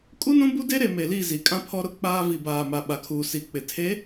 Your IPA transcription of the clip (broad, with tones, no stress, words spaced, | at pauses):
kʼu˦nũ˦bu˦de˦ ɾe˨me˨li˦˨zi˨ kʼã˦pʰɔ˦ɾʊ˦k͡paː˦ vi˨baː˨ma˨ ɓa˨kʰuː˨ si˨k͡pɪ˨ tʰe˨˦